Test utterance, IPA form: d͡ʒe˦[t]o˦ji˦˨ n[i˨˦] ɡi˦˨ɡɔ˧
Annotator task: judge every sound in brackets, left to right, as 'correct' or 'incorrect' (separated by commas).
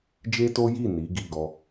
correct, correct